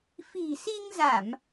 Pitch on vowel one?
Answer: low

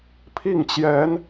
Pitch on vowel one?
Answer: falling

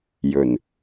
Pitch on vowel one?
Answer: low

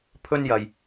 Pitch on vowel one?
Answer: high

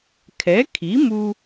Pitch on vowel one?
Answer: rising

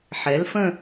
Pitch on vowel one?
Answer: rising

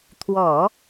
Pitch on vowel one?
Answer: low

